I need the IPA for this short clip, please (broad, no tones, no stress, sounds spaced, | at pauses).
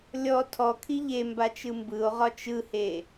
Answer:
lʲ ɔ tʰ ɔ kʰ i ʎ e m b a t͡ʃ ɯ m b ɯ o̯ ʁ ɒ t͡ʃ ɯ h e